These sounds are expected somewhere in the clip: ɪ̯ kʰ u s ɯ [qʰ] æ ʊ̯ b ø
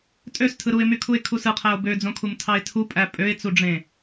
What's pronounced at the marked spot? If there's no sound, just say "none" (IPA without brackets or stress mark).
qʰ